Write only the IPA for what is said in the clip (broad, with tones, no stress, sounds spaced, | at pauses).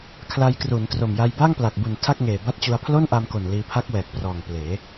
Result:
kʰ l a˧ j k r u˩˦ n t r o˨˩ m j a˧ j b a˥˩ ŋ p l a˨˩ k̚ b u˨˩ n tʰ a˥˩ k̚ ŋ eː˨˩ b a˥˩ t̚ t͡ɕ u˧ a̯ pʰ l o˥˩ n ʔ a˧ m k o˨˩ n l iː˧ pʰ a˦˥ k̚ w ɛː˨˩ k̚ p r ɔː˨˩ ŋ p l eː˩˦